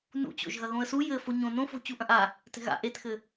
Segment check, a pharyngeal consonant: absent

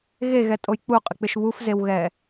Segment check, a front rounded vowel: absent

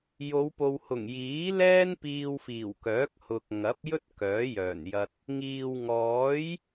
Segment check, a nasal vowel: absent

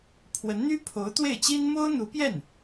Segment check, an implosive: absent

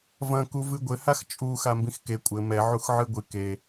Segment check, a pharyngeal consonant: present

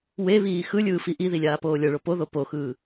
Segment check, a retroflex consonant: present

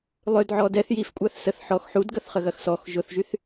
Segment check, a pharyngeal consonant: present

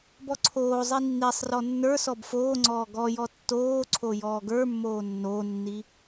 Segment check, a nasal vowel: absent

